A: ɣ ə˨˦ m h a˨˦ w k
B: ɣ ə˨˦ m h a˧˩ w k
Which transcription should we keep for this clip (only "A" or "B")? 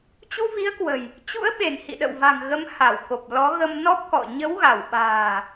B